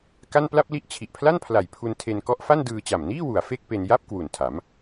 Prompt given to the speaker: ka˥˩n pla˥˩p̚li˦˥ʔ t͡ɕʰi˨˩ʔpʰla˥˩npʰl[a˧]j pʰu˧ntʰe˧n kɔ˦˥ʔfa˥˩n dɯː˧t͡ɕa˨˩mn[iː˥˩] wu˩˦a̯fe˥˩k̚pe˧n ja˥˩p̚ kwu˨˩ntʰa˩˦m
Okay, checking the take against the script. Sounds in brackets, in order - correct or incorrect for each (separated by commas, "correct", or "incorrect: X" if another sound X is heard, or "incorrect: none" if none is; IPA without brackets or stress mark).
incorrect: a˨˩, correct